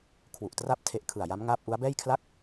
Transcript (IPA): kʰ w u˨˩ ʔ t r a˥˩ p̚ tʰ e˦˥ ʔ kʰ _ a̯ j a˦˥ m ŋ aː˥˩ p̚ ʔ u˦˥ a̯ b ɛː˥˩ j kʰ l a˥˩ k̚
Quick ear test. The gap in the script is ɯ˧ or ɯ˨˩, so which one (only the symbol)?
ɯ˨˩